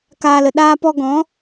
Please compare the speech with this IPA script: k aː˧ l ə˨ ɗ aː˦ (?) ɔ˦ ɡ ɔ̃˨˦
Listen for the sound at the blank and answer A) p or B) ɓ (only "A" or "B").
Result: A